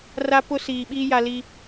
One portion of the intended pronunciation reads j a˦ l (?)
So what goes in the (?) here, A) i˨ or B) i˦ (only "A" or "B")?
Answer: B